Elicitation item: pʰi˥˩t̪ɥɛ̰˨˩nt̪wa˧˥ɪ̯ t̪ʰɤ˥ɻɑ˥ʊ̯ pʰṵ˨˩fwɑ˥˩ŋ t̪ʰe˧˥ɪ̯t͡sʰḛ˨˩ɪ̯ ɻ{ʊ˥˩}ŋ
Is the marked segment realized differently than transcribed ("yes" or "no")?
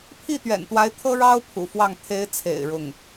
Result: no